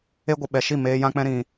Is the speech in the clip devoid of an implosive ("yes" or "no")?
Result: no